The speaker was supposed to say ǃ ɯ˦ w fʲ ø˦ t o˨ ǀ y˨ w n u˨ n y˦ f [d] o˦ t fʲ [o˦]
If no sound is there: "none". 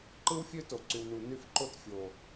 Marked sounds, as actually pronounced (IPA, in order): ǃ, o˨

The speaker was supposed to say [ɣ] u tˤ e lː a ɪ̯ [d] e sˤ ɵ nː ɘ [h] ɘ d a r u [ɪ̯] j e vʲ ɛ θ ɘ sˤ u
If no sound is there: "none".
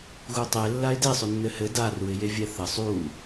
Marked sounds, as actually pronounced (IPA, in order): ɣ, d, h, ɪ̯

